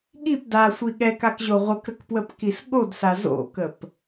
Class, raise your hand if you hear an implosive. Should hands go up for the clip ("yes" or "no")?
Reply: yes